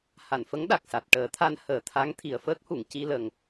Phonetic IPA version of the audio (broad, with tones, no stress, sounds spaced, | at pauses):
h a˨˩˨ n f ə˧˥ ŋ ɗ a˨˩ k̚ s a˨˩ t̚ ʈ əː˨˩˦ t̪ʰ a˧ n h əː˨˩˦ t̪ʰ a˧˥ ŋ t̪ʰ i˨˩ ə̯ f əː˦˥ k̚ h u˨˩˨ ŋ c i˧ l ə˨˩ ŋ